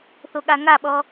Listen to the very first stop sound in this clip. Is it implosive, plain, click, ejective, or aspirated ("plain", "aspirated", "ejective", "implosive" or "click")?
implosive